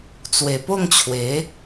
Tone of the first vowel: low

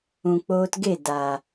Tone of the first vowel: low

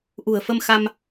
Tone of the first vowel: low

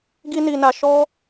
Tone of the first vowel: high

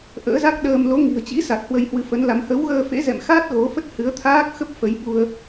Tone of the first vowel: rising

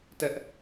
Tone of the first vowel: high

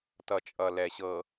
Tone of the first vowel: low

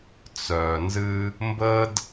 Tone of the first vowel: low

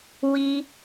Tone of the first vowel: high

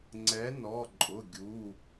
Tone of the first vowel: rising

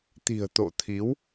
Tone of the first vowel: low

